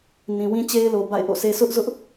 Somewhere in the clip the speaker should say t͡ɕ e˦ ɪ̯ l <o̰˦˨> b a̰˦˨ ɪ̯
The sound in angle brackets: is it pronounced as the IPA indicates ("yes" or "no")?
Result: no